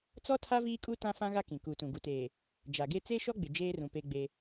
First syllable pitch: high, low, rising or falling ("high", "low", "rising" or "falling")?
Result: high